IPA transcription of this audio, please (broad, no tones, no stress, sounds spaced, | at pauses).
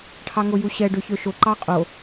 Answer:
ʈʰ ɑ ŋ o j u ɕ ɛ ɖ ø ç ø ʃ o ǃ ɑ qʼ o